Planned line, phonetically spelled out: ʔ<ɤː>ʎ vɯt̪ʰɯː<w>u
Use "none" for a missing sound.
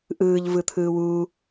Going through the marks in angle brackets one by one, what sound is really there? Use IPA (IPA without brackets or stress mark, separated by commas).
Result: ɯː, w